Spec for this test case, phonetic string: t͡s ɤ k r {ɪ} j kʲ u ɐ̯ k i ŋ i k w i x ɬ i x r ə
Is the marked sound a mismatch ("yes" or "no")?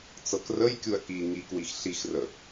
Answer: yes